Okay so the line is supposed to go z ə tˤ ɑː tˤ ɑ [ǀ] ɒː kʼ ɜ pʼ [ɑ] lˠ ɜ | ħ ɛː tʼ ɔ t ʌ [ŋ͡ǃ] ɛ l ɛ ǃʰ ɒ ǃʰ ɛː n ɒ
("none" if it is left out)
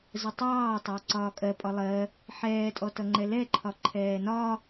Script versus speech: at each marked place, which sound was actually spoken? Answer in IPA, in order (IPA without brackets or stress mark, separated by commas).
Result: ǀ, ɒ, ŋ͡ǃ